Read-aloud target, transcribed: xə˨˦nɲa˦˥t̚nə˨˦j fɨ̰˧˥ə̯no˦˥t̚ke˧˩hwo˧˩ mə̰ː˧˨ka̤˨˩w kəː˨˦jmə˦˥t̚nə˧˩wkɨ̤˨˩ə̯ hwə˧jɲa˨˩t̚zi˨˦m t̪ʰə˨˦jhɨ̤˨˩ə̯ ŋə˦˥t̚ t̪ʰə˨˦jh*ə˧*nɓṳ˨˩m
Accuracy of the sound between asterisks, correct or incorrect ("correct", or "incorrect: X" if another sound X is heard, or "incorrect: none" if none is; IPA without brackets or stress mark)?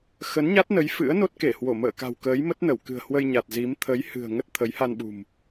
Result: incorrect: a˧